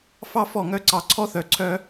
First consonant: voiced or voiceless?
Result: voiceless